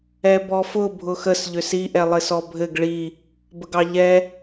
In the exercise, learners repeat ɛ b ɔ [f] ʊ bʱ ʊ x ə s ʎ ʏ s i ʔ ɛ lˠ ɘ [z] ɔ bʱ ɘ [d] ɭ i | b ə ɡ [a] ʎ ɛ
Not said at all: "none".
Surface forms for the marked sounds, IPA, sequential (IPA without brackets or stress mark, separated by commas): f, s, ɡ, ɑ